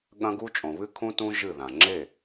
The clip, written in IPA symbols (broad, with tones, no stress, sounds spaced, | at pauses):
ɠ ɐ̃˦ ɡ u˦ t͡ʃʼ õ˨ β ɨ˦ kʰ ũ˦ t ũ˦ ʒ ɨ˦˨ ð ã˨ ŋ͡ǁ e˦˨